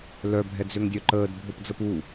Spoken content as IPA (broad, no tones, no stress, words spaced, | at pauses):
lœ bʱɛd͡zøŋdʲœǃəːd bʱopd͡zəpu